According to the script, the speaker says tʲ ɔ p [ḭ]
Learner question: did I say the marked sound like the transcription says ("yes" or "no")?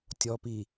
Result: no